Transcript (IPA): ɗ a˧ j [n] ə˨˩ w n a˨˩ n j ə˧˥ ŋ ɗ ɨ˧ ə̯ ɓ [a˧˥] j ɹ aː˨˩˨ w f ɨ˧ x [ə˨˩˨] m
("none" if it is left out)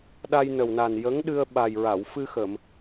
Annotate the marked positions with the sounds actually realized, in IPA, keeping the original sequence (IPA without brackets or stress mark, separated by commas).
n, a˨˩, ə˨˩˨